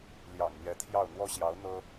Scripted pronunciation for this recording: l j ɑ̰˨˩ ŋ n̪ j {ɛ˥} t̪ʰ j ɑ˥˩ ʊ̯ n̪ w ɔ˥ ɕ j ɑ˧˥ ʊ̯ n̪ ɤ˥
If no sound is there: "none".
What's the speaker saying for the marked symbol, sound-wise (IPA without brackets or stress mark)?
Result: ɛ˧˥